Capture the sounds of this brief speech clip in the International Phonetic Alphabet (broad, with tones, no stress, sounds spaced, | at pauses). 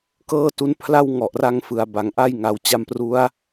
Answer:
k ɤː˥˩ t u˦˥ n pʰ l a˥˩ w ŋ ɔ˨˩ ʔ r a˧ ŋ f ɯ˨˩ a̯ b a˨˩ ŋ ʔ a˥˩ j ŋ a˧ w t͡ɕ a˧ m p r u˦˥ a̯